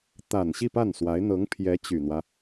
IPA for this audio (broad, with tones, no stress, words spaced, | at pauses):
t̪a˨˩n ɕi˥˧pa˥˩nswa˧˥ɪ̯ n̪ɤ˧˥ŋpʰjɛ˧˥ t͡ɕy˨˩n̪wä˦